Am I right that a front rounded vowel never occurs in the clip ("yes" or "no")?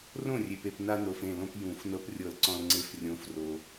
yes